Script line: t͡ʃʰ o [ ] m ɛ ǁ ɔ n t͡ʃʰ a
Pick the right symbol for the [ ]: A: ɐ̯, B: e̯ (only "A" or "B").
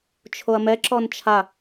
A